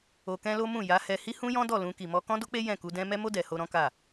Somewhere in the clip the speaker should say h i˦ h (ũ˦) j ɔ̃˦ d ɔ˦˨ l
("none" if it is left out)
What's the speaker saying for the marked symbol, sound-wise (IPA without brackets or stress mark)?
ũ˦